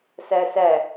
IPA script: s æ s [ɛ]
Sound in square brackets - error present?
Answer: yes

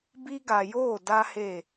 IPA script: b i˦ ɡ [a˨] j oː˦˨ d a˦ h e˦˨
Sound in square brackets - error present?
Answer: no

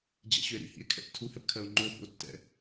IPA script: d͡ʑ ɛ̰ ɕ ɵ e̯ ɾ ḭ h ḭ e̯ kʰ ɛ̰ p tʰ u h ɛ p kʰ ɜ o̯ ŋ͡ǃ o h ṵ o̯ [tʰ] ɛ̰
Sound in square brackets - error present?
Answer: yes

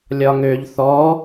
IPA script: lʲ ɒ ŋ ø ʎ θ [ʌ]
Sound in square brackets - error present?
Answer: yes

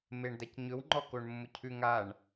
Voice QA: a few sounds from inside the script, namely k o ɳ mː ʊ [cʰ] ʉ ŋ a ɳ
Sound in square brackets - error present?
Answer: no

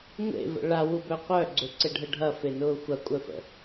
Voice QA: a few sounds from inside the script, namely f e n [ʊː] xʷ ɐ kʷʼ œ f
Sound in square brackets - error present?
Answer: no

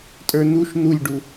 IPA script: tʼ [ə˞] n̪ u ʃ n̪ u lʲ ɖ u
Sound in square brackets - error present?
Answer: no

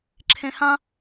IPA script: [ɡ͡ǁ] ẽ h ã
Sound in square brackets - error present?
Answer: yes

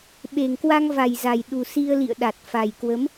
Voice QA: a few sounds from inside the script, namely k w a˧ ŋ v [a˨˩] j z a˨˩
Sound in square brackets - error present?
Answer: no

